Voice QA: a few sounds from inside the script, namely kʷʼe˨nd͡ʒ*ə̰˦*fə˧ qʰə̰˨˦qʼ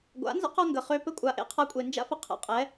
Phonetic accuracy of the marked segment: incorrect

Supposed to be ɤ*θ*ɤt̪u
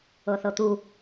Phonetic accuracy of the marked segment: correct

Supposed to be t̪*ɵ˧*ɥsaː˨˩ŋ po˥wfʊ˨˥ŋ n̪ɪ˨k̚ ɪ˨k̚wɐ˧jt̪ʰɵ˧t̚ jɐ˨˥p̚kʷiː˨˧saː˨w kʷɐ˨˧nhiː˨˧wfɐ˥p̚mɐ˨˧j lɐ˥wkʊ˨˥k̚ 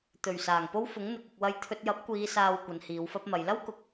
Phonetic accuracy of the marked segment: incorrect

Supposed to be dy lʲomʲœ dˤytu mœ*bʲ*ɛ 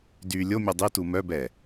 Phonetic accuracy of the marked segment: incorrect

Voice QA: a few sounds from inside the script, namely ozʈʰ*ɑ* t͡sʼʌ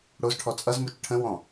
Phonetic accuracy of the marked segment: incorrect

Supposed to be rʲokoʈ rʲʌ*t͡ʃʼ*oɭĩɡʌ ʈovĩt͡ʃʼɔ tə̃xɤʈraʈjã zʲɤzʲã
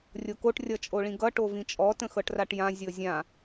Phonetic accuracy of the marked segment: correct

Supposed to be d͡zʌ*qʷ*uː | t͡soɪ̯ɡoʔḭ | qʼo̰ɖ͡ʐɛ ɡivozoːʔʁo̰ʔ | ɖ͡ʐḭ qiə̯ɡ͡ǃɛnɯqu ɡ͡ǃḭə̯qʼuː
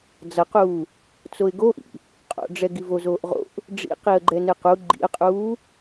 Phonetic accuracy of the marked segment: incorrect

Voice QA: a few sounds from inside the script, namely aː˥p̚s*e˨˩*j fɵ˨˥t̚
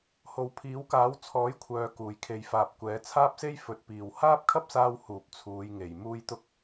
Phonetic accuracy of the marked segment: incorrect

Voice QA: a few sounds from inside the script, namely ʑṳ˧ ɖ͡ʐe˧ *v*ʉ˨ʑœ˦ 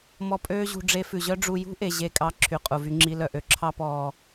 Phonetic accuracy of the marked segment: incorrect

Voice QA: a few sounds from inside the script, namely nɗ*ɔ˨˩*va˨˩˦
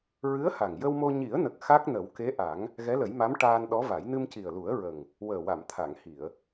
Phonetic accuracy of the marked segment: incorrect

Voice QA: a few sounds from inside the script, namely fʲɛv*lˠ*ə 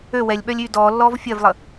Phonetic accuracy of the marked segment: correct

